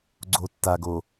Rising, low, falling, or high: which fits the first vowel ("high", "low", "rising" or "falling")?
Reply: low